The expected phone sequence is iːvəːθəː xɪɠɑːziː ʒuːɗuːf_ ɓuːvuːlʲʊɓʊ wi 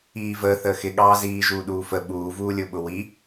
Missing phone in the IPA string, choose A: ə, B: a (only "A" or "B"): A